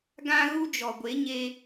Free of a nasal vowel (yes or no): no